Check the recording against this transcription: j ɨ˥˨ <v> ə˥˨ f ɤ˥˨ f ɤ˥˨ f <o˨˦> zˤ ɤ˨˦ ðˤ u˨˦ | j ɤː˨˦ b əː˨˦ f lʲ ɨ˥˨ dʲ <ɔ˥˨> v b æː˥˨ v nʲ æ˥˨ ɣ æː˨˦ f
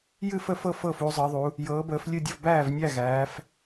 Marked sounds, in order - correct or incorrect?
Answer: incorrect: f, incorrect: u˨˦, incorrect: ə˥˨

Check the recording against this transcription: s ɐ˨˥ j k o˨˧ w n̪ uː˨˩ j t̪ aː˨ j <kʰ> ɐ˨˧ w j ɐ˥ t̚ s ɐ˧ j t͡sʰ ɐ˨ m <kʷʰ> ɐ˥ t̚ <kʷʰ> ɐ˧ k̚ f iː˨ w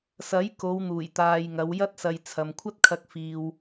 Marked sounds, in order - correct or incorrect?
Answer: incorrect: ŋ, correct, incorrect: kʰ

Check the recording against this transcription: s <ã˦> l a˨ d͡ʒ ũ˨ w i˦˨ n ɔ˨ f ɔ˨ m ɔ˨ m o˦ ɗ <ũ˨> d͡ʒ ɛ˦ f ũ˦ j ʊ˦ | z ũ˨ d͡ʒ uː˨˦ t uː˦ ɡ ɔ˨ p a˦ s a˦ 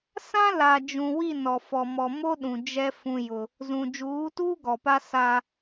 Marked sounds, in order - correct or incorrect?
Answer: correct, correct

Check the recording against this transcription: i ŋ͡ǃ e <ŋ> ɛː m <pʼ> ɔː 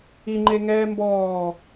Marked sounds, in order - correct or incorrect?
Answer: correct, incorrect: b

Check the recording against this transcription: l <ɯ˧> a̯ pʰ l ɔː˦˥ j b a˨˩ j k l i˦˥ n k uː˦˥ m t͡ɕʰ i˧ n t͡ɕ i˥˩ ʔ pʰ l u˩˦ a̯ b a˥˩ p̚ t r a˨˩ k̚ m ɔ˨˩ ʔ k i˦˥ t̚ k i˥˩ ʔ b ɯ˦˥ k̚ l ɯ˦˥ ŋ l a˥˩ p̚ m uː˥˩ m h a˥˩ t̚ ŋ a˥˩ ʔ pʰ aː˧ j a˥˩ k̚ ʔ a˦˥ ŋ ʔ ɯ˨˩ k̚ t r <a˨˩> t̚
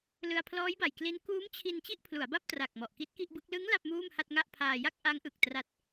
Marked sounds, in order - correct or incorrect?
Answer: correct, incorrect: a˦˥

